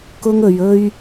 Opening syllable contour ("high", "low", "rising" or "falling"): high